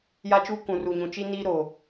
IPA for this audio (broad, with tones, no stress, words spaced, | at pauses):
ja˦t͡ʃuː˦ kũ˨ ru˨ɲũ˨ t͡ʃi˦ niː˦ ɾoː˨